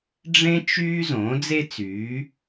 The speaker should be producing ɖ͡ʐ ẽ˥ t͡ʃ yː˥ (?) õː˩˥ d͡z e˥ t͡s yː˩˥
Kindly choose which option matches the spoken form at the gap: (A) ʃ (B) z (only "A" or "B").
B